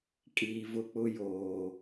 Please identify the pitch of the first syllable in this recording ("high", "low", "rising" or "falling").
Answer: low